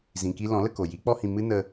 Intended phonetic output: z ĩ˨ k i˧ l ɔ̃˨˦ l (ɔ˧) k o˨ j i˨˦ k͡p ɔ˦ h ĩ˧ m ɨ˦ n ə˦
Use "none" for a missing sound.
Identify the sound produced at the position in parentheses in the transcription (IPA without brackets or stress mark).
ə˧